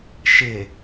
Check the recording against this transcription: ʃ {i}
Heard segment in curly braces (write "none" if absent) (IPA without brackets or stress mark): ɪ